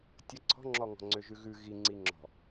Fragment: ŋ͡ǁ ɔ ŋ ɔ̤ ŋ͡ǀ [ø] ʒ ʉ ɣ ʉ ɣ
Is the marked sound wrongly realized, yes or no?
no